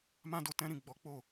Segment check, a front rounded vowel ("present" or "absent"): absent